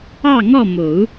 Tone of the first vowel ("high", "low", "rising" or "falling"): falling